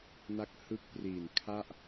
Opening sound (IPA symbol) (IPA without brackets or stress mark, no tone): n